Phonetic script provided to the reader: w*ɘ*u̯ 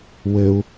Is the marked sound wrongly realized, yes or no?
no